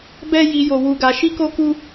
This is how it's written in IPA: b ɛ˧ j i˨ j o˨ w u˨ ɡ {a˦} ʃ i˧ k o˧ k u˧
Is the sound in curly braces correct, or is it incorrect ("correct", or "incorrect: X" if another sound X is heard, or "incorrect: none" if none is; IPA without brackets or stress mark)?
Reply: incorrect: a˨